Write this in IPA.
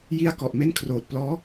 j i˧ a̯ k ɔ˨˩ ʔ m e˥˩ n kʰ r oː˨˩ t̚ p l ɔː˦˥

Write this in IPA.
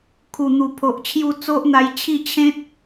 kʰ u˨˩ n̪ u˨˩ pʰ o˨ ʔ t͡ɕʰ j u˧ t͡s o˦ ʔ n̪ a˧ j t͡ɕʰ i˥˧ t͡ɕʰ ẽ˦ t̚

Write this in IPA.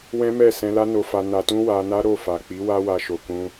w ɛ̃˦ m ɛ˦˨ s ɛ̃˧ l a˦ n o˧ f a˧ n a˧ t ũ˦ w a˧ n a˦ ɾ o˦˨ f a˨ k͡p i˨˦ w a˦ w a˧ ʃ o˨ k ũ˧

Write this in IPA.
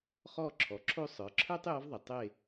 χ ɔ˦˨ ǁʰ ɔ˩˧ ǁʰ o˦˨ sˤ ə˞˩˧ ǁʰ ə˞˥ tˤ j ɔ˧˥ v ðˤ e˩ tˤ e˦˨

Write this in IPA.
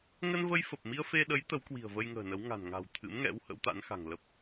ŋ ə˧ n v ə˧ j f ə˨˩ p̚ m i˧ ə̯ f e˧ ɗ ə˨˦ j t̪ ə˨˦ w k w i̤˨˩ ə̯ v ə˧ j ŋ ə̤ː˨˩ n ə˨˦ w ŋ a̤˨˩ n ŋ a̤˨˩ w t̪ʰ ɨ̰˧˥ m ŋ ɛ̰˧˥ w h ə̰˧˥ w t̪ a̰˧˥ n x a̤˨˩ ŋ l ə˦˥ p̚

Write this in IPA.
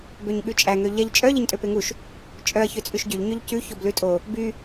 b ø ɲ ɠ ʉ t͡ʃʼ æ ŋ ø ʎ ɛ ʎ t͡ʃʼ œ ʎ e ɲ tʼ ø p e ŋ u ʃ | t͡ʃʼ œ ɐ̯ ç ø t͡sʼ ʉ ʃ ɟ y ʎ ɲ ø ʎ c ʉ ç o b l ʉ tʼ o | b y

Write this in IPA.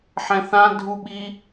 ħ ɛ̃ θ ã dʱ u ɓ i

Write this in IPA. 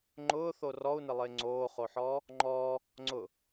ŋ͡ǃ ʊː θ o r ɔ u̯ n ɪ lˠ ɪː ŋ͡ǀ oː χ o ħ ɔː | ŋ͡ǃ ɔː | ŋ͡ǀ ʊ

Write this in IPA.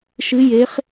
ʃ ɨ˦˥ j e˦˥ χ

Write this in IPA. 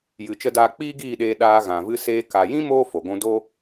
j ɨ˨ t͡ʃ ə˧ d aː˧ k͡p iː˦ ɡ iː˦˨ ɗ eː˧ ɗ aː˧ ɣ ã˨ v ɨ˧ s eː˧ k a˨ j ĩ˦ m oː˦ f o˨ ɡʷ ũ˧ d o˦

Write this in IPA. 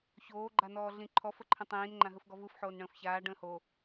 ç oː ɡ͡ǃ a n ɔː ɮ ĩ ǃʰ ɔ f ə ǃʰ ə̃ tˤ ĩː n ŋ͡ǃ ã ɦ ɯ f ɡ ɔ v ɯ f ħ oː n ɳ ə̃ː f ç aː ɖ ə̃ː h o

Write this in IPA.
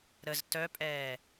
ɾ ə z t œ pʼ ɛː

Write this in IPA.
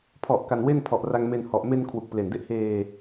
pʰ ɔ˨˩ ʔ k a˧ n w e˥˩ n pʰ ɔ˨˩ ʔ r a˧ ŋ m e˧ n h ɔ˨˩ ʔ m e˧ n kʰ w u˨˩ k̚ p l e˨˩ n d e˥˩ ʔ h eː˧

